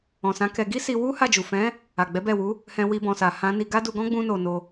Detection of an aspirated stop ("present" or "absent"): absent